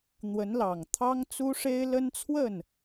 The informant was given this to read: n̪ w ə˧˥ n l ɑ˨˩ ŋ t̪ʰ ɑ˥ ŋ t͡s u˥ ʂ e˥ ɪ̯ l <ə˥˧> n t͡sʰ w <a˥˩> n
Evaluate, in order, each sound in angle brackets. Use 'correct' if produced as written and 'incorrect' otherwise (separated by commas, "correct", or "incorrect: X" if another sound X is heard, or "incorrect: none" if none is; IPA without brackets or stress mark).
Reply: incorrect: ə˥, incorrect: ə˥˩